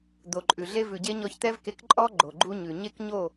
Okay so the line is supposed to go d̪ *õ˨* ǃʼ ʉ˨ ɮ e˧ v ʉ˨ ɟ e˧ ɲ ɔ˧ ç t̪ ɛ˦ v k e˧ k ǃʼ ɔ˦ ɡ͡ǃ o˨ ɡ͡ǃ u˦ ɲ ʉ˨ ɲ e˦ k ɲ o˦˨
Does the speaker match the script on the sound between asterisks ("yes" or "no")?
no